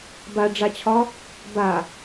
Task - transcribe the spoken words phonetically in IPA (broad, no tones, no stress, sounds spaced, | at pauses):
b a ɖ͡ʐ a t͡ɕʰ ɒ | b a